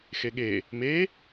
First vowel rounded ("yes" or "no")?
no